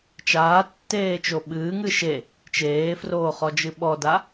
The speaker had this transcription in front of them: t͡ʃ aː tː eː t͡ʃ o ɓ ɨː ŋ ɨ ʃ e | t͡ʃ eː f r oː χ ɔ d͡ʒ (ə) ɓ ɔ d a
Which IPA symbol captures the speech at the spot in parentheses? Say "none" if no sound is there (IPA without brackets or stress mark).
ɨ